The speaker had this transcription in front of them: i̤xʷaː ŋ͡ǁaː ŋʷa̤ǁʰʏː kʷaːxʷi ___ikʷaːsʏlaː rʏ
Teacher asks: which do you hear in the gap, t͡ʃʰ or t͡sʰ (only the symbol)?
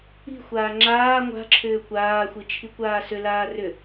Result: t͡ʃʰ